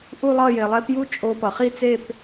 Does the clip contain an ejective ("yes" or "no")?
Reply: yes